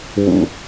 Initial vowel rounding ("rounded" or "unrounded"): rounded